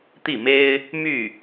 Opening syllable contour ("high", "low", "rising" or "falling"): falling